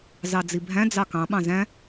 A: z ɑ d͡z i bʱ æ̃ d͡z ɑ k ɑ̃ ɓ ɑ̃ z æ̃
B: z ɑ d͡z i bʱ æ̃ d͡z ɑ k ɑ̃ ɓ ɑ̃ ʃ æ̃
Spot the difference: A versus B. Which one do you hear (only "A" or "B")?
A